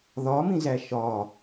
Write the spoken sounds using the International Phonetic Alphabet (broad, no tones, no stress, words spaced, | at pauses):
ðɒmĩzæ ʃɒ